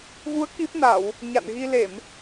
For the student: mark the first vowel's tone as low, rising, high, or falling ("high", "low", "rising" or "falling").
rising